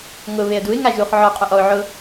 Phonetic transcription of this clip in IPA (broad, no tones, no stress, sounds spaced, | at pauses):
ŋ ʊ β e ə̯ d u ɪ̯ ŋ a ʒ u χ ʕ ɔ qʼ ʊ ʔ ɔ ʊ̯ ʕ ʊ